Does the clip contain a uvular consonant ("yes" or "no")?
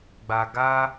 no